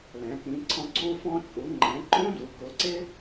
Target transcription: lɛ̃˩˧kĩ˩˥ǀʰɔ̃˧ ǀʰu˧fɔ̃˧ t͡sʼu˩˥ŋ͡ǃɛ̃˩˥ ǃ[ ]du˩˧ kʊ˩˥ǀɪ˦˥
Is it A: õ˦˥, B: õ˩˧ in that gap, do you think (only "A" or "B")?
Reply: A